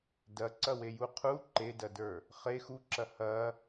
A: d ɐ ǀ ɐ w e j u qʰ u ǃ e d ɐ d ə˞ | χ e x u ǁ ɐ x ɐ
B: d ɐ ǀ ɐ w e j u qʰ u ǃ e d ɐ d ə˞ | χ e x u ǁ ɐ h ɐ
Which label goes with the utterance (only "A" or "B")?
B